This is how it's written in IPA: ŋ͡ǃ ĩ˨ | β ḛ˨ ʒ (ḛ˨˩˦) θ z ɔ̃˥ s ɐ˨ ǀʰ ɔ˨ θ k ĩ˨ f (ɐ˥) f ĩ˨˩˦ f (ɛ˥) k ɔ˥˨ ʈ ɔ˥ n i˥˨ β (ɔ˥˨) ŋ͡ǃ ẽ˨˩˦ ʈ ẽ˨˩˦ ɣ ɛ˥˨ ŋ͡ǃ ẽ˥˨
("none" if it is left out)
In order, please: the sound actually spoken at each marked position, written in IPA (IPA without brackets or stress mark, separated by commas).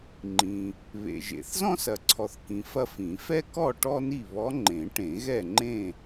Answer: ḛ˨˩˦, ɐ˥, ɛ˥, ɔ˧˥